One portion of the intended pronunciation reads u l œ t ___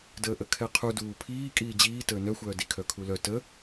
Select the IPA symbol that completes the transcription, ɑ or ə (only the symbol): ə